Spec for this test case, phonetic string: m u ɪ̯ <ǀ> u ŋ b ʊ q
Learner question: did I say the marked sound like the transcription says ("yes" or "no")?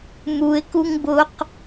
no